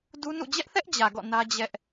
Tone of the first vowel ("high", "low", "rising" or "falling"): high